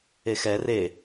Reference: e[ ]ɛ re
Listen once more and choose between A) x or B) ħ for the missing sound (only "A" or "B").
A